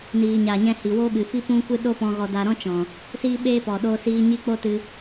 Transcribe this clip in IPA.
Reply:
niː˨ɲa˨ɲɛ̃˧ hi˨wo˦ɓɨ˨fi˦ pũ˦kʷɨ˦ ɗo˦pɔ̃˧ ɣɔ˧da˧ɾɔ̃˦t͡ʃɔ̃˨ | siː˦ɓeː˦pɔ˨ ɗo˧siː˧ ɲi˦k͡po˦tɨ˧

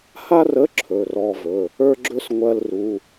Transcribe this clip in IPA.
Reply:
ha˥rə˧˥˧ ǁʰɵ˧˥˧rɔ˥vɵ˧˥˧ | ə˞˥ɡ͡ǁɵ˥s ŋʷɜ˥lru˧˥˧

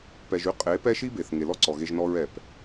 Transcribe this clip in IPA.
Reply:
pɛ˧ʒy˦ qʼe˨˦ pɛ˦ʃi˦be˨θ ŋe˨lɔ˦ǀɔ˨ɣe˧ʒ nɔ˧ɹɛ˨p

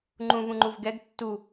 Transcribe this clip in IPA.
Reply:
ŋ͡ǃũvũŋ͡ǃuv ɡɛɡ tːu

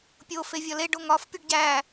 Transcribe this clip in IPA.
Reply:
pʲo fevʲɒleɖoŋ ɒfpʲuɖ ɟæ

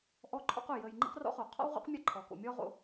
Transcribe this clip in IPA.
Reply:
ʔɔ˦ǃʰɔ̰˦qʊ˩ jə˨j ŋ͡ǃḭ˥qrɔ̰˥χo˩ qʰɔ̰˥wʁo̰˥qmʲa˦ ǃʰɔ˩ko̰˨mʲɔ˥ ʁo̰˦

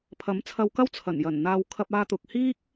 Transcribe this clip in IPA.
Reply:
pʰɐ˨˥mt͡sʰɐ˧wkɐ˥w t͡sʰɐ˨˩njɐ˨˩n n̪aː˨wkʰɐ˧p̚aː˧ t̪ʊ˧k̚ hiː˥k̚

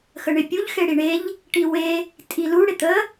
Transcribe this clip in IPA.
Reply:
xəɳɪpʲuʎ xeɽiɳeʎ | ʈiwe | tʼilu ɽɪt̪ə

